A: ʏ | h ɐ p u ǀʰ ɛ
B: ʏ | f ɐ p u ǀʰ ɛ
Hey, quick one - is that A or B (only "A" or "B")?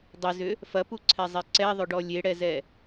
B